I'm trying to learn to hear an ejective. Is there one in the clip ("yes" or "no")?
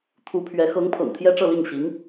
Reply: no